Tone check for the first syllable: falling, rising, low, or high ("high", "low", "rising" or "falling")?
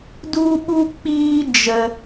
high